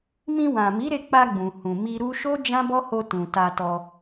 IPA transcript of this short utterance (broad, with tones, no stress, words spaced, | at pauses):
mĩ˧wã˨mi˨˦ɾe˧ k͡pa˧ɡ͡bũ˨hũ˨ mi˧ɾu˦ ʃo˦ d͡ʒã˦bɔ˦ho˧ tũ˨ta˧tɔ˧